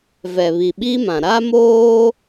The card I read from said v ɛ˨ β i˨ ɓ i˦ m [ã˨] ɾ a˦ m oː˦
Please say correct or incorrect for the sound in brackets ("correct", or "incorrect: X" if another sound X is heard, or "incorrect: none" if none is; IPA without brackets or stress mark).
correct